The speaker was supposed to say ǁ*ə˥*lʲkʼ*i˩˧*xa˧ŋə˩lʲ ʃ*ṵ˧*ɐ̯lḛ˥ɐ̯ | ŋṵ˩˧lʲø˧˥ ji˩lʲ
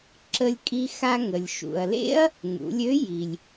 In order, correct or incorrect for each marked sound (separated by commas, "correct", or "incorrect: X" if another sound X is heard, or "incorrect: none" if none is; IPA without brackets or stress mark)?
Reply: incorrect: ə˧, incorrect: i˧, incorrect: ṵ˩